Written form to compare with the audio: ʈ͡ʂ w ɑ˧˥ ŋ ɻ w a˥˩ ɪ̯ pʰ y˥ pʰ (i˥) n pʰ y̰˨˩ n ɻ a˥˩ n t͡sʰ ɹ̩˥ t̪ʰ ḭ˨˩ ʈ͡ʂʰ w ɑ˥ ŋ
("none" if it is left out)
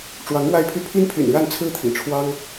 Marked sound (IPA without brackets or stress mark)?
i˥